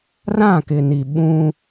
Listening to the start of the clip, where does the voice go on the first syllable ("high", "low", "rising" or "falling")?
falling